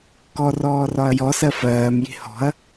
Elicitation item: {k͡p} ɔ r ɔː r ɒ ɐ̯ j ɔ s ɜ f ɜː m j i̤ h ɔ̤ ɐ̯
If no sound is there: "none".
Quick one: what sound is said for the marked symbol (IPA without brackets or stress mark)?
k